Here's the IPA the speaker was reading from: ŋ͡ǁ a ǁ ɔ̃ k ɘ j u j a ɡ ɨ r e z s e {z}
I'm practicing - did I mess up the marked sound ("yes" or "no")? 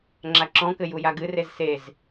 no